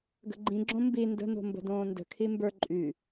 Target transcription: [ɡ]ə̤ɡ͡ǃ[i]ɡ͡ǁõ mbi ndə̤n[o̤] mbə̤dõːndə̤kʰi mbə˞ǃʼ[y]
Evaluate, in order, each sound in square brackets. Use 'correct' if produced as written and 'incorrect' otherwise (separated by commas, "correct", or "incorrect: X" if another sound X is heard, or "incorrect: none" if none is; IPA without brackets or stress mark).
correct, incorrect: ĩ, correct, correct